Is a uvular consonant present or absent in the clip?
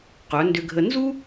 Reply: present